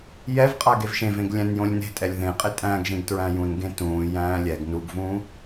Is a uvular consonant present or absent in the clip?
present